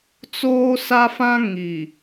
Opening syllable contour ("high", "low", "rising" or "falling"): high